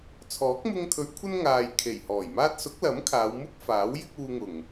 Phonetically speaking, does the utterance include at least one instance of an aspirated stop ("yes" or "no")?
yes